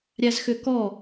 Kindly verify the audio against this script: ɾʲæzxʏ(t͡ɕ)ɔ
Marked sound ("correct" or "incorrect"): incorrect